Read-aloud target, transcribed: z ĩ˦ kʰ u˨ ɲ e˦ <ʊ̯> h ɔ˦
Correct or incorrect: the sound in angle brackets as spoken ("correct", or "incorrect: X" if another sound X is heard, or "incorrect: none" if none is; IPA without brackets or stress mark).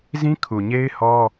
incorrect: ɪ̯